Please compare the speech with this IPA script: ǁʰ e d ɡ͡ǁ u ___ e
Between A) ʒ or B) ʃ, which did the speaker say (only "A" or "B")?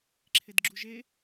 A